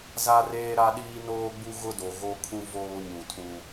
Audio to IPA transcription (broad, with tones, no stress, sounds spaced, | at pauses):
z a˦ r eː˦ ɾ a˦ ɗ iː˦ n oː˦ ɡ͡b u˦ ɣ ʊ˦ d o˨ ɣ o˦ kʰ ũ˦ v oː˦ ɲ ũ˨ tʰ ũ˦